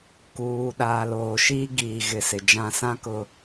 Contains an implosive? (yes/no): yes